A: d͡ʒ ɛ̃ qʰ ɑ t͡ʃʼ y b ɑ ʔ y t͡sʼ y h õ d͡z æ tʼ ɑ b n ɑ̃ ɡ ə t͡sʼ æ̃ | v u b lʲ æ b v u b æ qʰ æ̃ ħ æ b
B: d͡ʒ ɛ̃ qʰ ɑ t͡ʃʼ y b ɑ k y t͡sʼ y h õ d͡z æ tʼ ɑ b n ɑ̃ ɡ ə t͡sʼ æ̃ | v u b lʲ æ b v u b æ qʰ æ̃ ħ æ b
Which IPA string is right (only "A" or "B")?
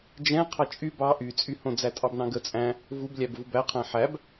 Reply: A